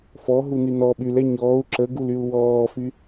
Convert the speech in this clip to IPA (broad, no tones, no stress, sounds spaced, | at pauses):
f ɔ ɦ u n y n ɔ ɓ y l ɛ ɲ ɔː u̯ ǁ ə ɡ u l y u̯ w ɔː f y